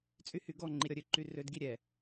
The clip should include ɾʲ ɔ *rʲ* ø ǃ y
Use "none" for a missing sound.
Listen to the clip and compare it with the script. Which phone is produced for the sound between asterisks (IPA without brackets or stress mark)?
ɾʲ